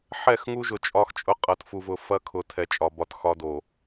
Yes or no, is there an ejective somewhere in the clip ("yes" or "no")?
yes